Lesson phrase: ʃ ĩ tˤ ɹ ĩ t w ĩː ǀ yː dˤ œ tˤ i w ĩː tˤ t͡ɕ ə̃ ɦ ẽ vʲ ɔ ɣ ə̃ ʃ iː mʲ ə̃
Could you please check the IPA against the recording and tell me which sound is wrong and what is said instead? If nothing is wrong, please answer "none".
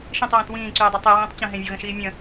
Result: none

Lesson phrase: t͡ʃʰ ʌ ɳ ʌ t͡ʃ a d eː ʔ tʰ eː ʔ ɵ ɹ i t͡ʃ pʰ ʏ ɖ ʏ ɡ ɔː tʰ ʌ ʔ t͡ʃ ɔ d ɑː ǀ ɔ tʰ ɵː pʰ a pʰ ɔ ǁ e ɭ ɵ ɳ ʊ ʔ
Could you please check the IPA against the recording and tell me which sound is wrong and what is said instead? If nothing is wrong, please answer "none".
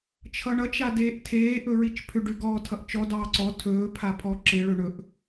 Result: ʊ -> ɵ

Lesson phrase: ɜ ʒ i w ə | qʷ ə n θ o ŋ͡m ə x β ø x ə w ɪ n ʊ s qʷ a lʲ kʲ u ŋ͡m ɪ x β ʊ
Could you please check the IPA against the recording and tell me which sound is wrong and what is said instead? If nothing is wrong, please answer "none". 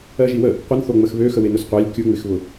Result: none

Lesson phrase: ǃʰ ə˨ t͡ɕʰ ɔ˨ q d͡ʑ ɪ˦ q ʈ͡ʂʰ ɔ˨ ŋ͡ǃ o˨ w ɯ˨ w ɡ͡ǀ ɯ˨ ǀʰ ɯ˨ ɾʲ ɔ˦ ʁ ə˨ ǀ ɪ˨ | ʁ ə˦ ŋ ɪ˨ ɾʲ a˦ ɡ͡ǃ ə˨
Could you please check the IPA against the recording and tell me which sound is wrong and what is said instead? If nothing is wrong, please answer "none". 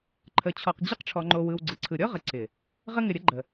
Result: a˦ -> ə˦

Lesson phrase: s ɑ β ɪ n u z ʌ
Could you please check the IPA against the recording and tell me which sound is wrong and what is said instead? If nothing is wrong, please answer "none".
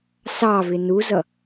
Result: β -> v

